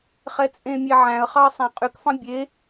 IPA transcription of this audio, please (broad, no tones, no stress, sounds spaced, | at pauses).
χ ɛ t͡sʼ ẽ mʲ e ʕ æ̃ ə̯ χ ɑ ə̯ sˤ æ̃ qʼ y k f ɑ̃ bʲ e